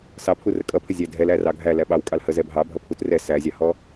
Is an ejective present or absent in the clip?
present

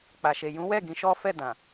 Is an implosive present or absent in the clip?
absent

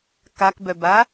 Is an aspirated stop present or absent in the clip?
absent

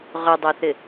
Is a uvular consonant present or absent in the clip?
present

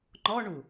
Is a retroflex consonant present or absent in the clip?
present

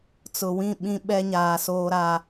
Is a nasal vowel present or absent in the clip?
present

